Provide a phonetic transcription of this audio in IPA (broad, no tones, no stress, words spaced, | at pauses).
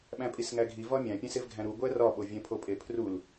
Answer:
ɓæ̃pʼisŋæɡʱi vɒmʲæ̃pʲẽs evɡʱæ̃ɾu ɡʷærɒɓo vʲẽpʰopʼepʰrul